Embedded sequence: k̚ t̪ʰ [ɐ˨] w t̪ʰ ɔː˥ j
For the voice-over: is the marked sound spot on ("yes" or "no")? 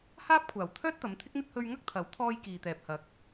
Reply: no